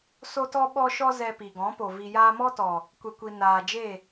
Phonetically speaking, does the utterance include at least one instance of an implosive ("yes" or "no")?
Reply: yes